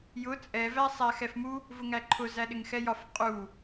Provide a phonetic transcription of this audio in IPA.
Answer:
j ʊ t͡sʼ ɛ v æ sˤ æ x ɛ f m u | v ʊ ŋ æ ǃʰ ʊ z æ ɗ ɪ ŋ x ɛ j ɒ f qʼ u

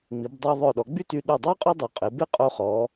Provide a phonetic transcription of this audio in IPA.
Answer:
ŋ͡m i˩˧ b dˤ ə˞˧ ðˤ œ˧˩ ɗ ɔ˩˧ ɡ͡b y˥ t y˧ ɗ u˧˩ dˤ a˥ qʼ o˥ dˤ o˩˧ qʼ e˩˧ b e˥ qʼ o˧ χ ɔ˩˧

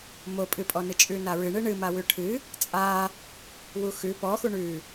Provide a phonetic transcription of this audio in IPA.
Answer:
m o pʼ ɨ pʼ ɔ n ɨ t͡ʃʼ ʉ n a ɹ ɨ ɳ ɨ ɳ ɨ m a w ʉ ʈʰ ɨ | t͡sʼ a | w u x ʉ p ɔ x u ɳ ʉ

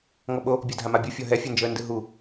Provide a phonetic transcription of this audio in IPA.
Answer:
ŋ ɔ ɓ o | bʲ ɔ dʱ a m a bʲ u fʲ ɔ ɦ ɛ fʲ ɛ n d͡ʒ ɤ ə̯ n d ɯ ɦ u

